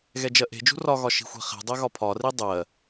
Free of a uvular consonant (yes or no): no